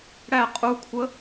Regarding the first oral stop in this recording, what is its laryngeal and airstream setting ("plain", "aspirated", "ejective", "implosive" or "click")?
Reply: ejective